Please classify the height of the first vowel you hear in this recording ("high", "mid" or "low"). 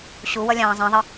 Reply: high